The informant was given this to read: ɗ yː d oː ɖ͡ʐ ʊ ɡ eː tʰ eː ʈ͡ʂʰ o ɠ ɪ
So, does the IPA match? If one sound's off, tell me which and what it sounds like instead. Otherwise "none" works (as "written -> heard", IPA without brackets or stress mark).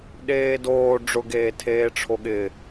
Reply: yː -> eː